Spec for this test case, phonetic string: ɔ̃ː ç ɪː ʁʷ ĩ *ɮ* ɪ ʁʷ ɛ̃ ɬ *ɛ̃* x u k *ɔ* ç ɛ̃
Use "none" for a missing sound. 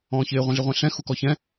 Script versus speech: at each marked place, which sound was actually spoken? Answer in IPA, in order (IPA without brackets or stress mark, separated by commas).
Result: ɮ, ɛ̃, ɔ